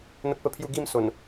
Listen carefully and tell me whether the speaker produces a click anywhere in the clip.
no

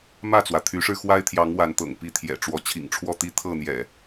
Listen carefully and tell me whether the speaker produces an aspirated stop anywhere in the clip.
yes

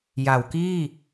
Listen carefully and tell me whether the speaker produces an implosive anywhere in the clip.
no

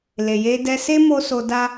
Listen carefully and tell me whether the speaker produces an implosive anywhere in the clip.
no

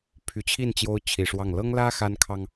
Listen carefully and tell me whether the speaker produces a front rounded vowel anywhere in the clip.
yes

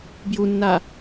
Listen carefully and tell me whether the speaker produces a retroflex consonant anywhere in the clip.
no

